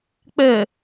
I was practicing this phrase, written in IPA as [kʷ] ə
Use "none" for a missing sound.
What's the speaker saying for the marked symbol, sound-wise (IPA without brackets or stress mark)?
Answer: k͡p